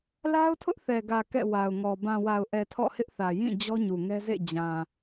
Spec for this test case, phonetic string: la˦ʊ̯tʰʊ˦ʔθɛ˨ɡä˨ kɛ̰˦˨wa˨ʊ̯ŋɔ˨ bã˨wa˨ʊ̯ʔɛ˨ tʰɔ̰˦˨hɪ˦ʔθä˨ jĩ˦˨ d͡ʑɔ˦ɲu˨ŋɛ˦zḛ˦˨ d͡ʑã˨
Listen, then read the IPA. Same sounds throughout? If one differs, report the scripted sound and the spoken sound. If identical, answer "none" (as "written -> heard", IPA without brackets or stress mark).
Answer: none